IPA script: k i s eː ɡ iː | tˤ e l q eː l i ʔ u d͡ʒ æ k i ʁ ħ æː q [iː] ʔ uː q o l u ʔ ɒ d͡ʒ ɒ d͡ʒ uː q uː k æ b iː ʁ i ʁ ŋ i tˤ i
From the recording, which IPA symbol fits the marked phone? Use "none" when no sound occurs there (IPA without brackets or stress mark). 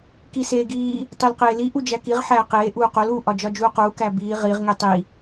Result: eː